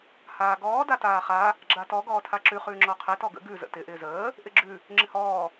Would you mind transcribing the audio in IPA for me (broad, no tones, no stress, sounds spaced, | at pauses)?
h aː ɡ ɔː d a t aː χ a | ɡ͡ǁ a t ɔ ɡ ɔː tʰ a ǁ ʉ χ ʉː ŋ͡ǁ ɔ qʰ e t ɔ ɡ ə̰ ɡ ʉ z ə̰ t ɪ ʔ ɪː z əː | ʔ ɪ ɡ͡ǁ ʉ | ŋ͡ǁ ɪ h ɔː